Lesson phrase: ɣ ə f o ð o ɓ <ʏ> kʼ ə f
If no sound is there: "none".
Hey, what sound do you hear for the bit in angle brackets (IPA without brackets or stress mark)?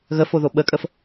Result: ə